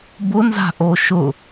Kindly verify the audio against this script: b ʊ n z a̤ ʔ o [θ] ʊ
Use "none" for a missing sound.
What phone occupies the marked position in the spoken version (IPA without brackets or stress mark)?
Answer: ʃ